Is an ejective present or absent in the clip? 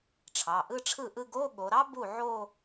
absent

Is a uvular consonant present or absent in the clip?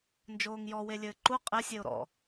present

